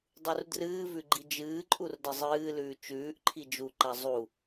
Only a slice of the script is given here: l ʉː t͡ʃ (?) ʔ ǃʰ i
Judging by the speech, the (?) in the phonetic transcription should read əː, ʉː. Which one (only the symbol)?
ʉː